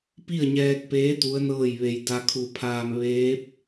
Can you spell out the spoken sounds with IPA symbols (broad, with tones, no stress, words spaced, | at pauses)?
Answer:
pi˥˨ə̯ɲɛː˧k̚peː˧˥ t̪u˧˥ə̯nɤː˥˨jʋe˧j da˧kʰu˧˩pʰaː˧m ʋeː˧˥p̚